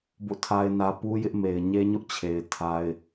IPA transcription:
b o̰˦˨ tʰ a˦ ɪ̯ n ä˦ p u˦ j ɪ˦ ʔ m e˨ ɪ̯ ɲ e˦ ɲ ʊ˦ ʔ t͡ɕʰ e˨ ɪ̯ tʰ a˦ ɪ̯

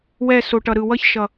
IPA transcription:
w ɛ˦˨ s o˨ ʈ ʌ˨ ɾ ɯ˨ w ʌ˧ ç ʃ ʌ˨

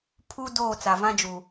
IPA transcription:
pʰ u˦ d oː˦˨ t͡s a˨ v ã˦ d͡ʒ u˨

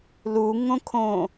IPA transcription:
l u ŋ õ kʰ õ

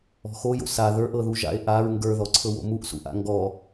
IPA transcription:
ɔ̤ x o j o̰ s a ð ə˞ ʔ ɤ ð u ʒ a̰ e̯ ʔ a ɹ ŋ ɡ ə˞ ð ɔ ǀʰ ɤ w o̰ m u ʔ s ṵ ʔ a̰ ŋ ɡ ɔ

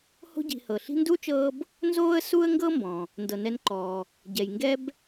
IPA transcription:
h o̤˦ ɟ i̤˨ h ɤ˩ ɬ i̤˦ n d u˥ t͡ʃ ɤː˦ b | n z oː˦ ə̯ s u˦ ə̯ ŋ ɡ ɤ˦ m b ɔ̃˩ | n d ɤ˩ n ɛ˨ n ǃ ɔː˩ | ɟ ɛ˩ j ŋ ɡ ɛ˦ b

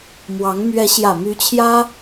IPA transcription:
m w ɑ˧˥ ŋ m ɥ ɛ˧˥ ɕ j ä˨˩ m y˧˥ t͡ɕʰ j ä˥

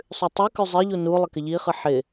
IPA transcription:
sˤ ʉ tˤ ɯ k ʉ zˤ ɪ ʎ u n u lˠ ɪ k ɪ ʎ i χ ɯ ħ ɪ

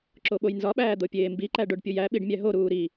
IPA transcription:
ǁ o ɓ o j n z ɒ ɓ æː d̪ o pʲ eː m b i ǃ æ ɖ o ɖ pʲ u j æ ɓ i ɖ mʲ æ ɦ o ɾ uː ɾ i

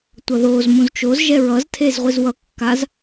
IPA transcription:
tʷ ʌ ð o z m ũ z t͡ʃ o z ʒ ɛ ɹ ʌ z tʰ e z ʁʷ i z w ʌ kː a z

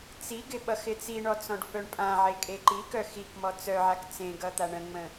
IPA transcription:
t͡s i ɡ ɪ ɓ ʌ x ɪ t͡s i ɳ ɔ t͡s ɔ̃ ɖ f œ ɳ pʼ ã ʕ e kʼ e ǃ i k œ x i k m ɔ t͡s œ ʕ a k t͡s ẽ ɡ ʌ t̪ a ɳ ə̃ ŋ͡m ə̃

